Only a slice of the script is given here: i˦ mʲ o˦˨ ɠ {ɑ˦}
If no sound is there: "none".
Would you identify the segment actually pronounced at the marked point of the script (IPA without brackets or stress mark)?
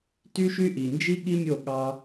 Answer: ɑ˦